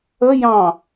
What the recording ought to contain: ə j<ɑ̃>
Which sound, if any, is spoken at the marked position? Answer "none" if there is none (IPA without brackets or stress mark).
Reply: ɑ̃